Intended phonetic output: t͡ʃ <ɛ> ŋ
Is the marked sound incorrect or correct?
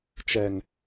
correct